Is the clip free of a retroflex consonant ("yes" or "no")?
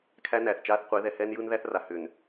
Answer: yes